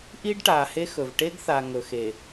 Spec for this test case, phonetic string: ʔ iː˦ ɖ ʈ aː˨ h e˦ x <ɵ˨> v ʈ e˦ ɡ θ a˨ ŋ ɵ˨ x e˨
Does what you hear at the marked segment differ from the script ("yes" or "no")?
no